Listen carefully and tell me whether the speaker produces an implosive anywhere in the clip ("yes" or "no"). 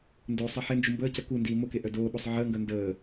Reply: yes